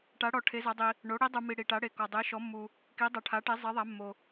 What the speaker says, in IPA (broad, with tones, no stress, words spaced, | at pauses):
ʈa˩˧ɽɔ˩ ʈʰe˩˧za˩˧dˤi˩ | ɳo˩˧ ɽi˩˧dˤu˩mi˩ ɽi˩ʈa˩˧ɽe˩kɔ˩ dˤe˩˧ʃɔ˩˧mːu˩ | ki˩˧dˤa˩ ʈʰa˩˧ʈe˩˧ zˤe˩˧ðˤa˩˧mːo˩